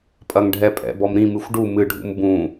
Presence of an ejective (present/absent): present